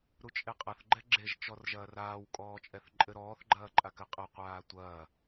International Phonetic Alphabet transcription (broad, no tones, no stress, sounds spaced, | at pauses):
ɾ u t͡ʃʼ e qʼ ɐ θ ɡ͡ǃ ɛ ɡ͡ǁ e ʒ t͡ʃ ɔ r ʒ ɐː r aː w kʼ ɔː t͡ʃʼ ɛ θ ǃʼ ɘ ɾ ɔː θ ɡ͡ǃ ɐː ǃʼ a k ɘ qʼ ɐ qʷ aː tʷ ɐː